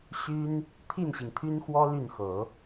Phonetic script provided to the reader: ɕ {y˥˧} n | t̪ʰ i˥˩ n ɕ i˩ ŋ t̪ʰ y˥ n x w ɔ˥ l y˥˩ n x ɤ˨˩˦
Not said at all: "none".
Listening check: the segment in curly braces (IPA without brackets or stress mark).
y˥